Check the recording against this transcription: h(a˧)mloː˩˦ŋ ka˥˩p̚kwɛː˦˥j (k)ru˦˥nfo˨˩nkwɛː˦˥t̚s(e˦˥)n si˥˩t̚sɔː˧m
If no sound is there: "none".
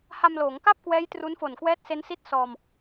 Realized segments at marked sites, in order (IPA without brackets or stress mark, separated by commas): a˧, t, e˦˥